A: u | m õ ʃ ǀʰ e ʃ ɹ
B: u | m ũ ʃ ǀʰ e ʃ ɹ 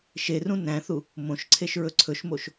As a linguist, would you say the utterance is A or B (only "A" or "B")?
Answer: A